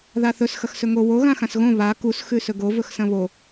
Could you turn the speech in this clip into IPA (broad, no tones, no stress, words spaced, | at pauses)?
ðaθɵs xɐxsɵŋo wo ɣãxãsɣõ βa kus xʉsɵɡo vɵxsɐ̃βo